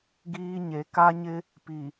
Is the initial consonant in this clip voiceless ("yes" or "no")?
no